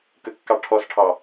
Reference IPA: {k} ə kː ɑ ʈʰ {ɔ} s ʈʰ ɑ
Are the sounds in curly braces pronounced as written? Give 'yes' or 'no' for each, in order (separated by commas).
yes, yes